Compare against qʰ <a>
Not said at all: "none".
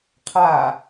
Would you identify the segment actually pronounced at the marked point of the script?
a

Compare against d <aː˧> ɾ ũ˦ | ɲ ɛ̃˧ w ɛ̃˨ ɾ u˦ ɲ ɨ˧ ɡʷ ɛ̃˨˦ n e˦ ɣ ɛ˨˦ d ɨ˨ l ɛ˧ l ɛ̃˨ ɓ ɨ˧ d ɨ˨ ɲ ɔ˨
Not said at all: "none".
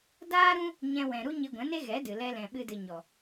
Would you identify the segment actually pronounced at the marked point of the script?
aː˦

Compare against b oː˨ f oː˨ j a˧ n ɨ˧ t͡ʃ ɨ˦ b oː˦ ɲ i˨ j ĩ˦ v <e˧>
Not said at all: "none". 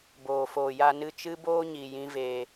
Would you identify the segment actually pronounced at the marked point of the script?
eː˧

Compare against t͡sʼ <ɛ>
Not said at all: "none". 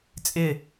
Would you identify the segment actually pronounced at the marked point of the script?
ɪ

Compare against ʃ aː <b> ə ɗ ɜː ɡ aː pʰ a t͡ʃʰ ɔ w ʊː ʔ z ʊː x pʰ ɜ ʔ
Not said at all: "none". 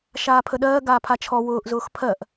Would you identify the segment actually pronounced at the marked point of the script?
pʰ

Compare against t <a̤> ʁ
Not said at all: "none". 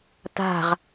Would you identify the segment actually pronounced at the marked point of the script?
a̤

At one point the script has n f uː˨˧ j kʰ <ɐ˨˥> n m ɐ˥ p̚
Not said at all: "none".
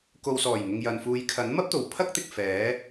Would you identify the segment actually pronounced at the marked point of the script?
ɐ˨˥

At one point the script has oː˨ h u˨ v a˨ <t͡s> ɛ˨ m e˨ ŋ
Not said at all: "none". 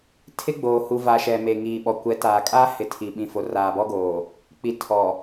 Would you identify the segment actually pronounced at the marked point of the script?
ʃ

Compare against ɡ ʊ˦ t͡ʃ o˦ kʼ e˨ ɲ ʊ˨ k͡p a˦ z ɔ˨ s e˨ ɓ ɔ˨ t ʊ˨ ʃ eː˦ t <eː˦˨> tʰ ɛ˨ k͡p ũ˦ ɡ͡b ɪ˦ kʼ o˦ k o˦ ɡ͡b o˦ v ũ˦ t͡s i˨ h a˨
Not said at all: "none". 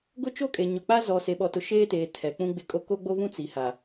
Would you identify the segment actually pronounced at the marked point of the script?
eː˨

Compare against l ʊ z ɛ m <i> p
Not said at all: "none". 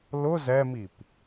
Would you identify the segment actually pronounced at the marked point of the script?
i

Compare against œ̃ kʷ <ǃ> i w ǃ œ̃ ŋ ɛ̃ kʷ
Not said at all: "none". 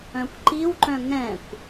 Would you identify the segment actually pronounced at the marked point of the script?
ǃ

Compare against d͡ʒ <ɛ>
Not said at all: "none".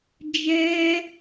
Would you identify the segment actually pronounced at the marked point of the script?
ɛ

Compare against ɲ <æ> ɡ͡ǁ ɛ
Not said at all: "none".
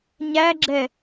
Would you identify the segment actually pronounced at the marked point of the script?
æ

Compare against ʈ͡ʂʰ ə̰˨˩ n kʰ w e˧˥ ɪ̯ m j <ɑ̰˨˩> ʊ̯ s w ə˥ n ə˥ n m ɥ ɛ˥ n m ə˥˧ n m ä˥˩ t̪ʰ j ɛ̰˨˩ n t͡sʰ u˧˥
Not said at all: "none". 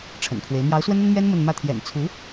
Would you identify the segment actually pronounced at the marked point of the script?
ɑ˧˥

